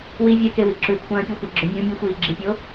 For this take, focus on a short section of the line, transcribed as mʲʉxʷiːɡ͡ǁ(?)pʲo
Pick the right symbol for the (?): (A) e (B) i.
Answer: B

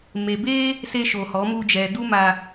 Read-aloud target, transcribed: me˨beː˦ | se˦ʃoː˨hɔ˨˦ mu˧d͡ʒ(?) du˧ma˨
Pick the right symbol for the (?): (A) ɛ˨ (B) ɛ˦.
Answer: A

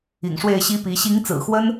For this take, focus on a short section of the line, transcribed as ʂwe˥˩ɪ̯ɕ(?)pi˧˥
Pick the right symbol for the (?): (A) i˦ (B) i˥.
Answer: B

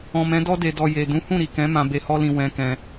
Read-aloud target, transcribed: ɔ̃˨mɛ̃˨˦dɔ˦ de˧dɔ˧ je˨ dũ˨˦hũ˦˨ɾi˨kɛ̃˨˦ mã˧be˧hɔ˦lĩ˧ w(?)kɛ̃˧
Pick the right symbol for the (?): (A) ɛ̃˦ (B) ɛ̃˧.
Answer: B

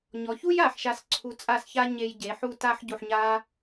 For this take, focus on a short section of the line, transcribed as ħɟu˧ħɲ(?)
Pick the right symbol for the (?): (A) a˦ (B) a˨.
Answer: A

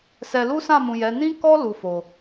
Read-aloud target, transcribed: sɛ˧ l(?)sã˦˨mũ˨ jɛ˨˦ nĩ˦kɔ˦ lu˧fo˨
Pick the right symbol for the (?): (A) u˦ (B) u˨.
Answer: A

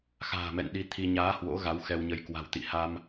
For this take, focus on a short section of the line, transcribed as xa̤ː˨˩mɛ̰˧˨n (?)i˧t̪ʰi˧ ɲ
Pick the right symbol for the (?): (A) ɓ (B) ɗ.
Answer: B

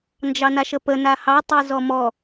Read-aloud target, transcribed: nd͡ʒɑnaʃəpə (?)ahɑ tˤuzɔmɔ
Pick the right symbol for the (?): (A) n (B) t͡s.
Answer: A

